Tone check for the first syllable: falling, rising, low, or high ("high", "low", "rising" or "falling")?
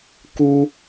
high